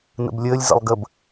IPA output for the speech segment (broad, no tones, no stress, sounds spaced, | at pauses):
n ə̰ b lʲ əː lʲ z ə̰ lˠ ɡ ə b